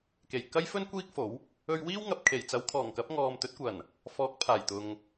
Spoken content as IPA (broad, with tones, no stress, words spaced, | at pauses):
ke˨˩jkɐ˥jfɵ˥n kʷiː˥k̚ fo˨˥w | ɵ˧ɥwiː˥wŋɐ˨p̚kʰe˨˩j t͡sɐ˨˧wkʰɔː˨˩ŋkɐ˨˥p̚ ŋɔː˨mt̪ɵ˨˥t̚ kʷɐ˨˩n | fɔː˨˥k̚ pʰaː˨˩jt̪ʊ˨ŋ